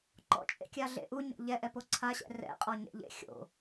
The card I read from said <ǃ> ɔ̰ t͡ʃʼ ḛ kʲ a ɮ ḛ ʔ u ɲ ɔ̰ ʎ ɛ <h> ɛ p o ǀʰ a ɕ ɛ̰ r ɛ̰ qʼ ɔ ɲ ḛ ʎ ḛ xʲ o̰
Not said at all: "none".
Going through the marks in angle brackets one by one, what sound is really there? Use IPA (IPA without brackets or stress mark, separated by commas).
ǃ, ʔ